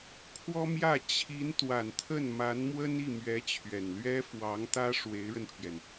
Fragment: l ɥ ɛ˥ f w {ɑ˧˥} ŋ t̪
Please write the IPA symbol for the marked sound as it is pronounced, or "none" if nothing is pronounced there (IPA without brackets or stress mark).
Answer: ɑ˧˥